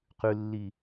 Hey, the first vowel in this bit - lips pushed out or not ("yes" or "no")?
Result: yes